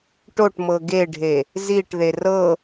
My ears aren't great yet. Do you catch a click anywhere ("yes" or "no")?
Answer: no